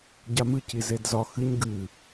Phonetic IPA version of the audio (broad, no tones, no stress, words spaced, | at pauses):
ɟamɨ cizedzɒ xɨɲ ɡɨ